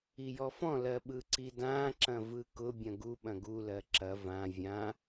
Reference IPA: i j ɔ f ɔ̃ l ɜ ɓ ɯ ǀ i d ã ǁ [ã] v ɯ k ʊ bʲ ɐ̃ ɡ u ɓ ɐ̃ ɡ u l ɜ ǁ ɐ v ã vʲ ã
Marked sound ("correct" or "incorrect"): incorrect